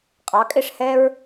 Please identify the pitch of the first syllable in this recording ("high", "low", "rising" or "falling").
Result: rising